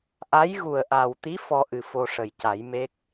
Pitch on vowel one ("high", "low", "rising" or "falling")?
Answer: rising